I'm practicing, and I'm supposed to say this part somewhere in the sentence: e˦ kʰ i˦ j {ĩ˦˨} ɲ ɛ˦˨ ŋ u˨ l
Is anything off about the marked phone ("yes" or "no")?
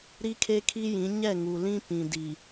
yes